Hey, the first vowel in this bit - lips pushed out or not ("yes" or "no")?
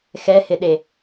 no